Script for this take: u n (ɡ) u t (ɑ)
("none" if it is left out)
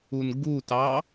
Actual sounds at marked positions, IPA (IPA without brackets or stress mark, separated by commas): ɡ, ɑ